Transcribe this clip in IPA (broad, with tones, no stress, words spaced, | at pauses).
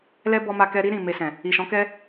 lɛ˦bɔ˧ma˧kɛ˧ ɾi˦ ɾĩ˦˨me˧sɛ̃˨ | i˨ʃɔ̃˨˦kɛ˦